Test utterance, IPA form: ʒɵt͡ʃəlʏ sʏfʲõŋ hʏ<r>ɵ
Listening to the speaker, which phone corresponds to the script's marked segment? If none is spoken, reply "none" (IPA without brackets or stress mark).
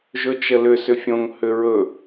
ɹ